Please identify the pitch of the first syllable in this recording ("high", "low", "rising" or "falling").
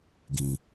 low